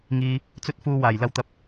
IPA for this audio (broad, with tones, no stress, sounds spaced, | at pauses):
ŋ iː˧ | t͡s ɵ˥ t̚ f uː˧ w aː˨˩ j l ɐ˧ w t̪ ɐ˨˥ p̚